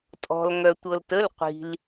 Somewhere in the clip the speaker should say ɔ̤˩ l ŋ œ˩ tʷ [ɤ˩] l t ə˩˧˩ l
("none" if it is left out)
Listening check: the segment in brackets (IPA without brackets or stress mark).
ɤ˩